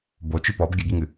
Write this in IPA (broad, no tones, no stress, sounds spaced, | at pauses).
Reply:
b o t͡ʃ i p ɔ b ɡʲ ɘ ɡ i ŋ ɨ